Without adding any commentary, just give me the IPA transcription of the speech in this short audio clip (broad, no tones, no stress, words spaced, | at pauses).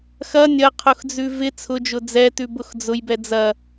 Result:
xɐ nʲɐqʰʊxd͡zʉ vɪ t͡sʰʊd͡ʒʊ d͡zɛtʉbʊx d͡zʊjbɛ d͡zɐ